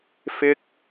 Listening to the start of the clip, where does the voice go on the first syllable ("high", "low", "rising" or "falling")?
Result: high